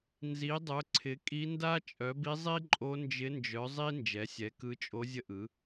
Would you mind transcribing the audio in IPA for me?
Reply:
n z i˩˥ dˤ œ˩˥ ǀʰ ɪ˩˥ kʼ i˧˥ n d a˥ t͡ʃʼ œ˩˥ b i˧˥ zˤ i˥ ǃʼ o˧˥ n d͡ʒ ɪ˧˥ n d͡ʒ œ˩˥ zˤ i˥ n d͡ʒ ɛ˩˥ sʲ ɛ˩˥ k ɯ˧˥ t͡ʃʼ o˧˥ zʲ ə˥ ʔ ɯ˩˥

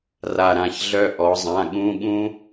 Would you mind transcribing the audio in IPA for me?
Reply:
r a˦˨ ɾ ã˦˨ ç ɮ œ˥ ʔ ɔ˩˧ zˤ ã˩˧˩ ɠ ũ˧˥˧ ɠ ũ˥

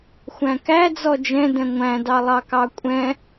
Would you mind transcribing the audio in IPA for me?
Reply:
xʷ æ̃ k æ d͡z ɔ d͡ʒ ɛ̃ d ɛ̃ ŋʷ æ̃ d ɑ lˠ ɑ k ɑ kʷʼ ɛ̃

